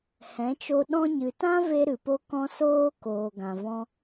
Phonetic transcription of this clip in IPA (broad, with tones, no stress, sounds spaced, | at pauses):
h ɛ̃˨˦ t͡ʃ o˧ ɗ ɔ̃˧ ɲ ɨ˨ t ã˦ v e˧ ɾ ɨ˨ p o˧ k ɔ̃˧ s oː˧ k oː˨ ɡ ã˨ v ɔ̃˦